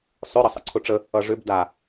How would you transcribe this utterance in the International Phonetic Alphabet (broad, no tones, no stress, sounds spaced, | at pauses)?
sˤ ʏ ɾ ʌ sˤ ə̰ ǀʰ ʊ ʈ͡ʂ ə | ʌ ʐ ʏ b d a